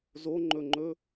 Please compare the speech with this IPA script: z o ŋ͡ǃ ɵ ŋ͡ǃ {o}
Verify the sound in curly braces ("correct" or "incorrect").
incorrect